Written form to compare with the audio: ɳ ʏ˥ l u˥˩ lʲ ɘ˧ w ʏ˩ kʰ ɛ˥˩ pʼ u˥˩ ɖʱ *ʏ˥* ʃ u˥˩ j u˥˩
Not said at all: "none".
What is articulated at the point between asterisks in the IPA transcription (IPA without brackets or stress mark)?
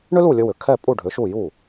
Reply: ʏ˩˥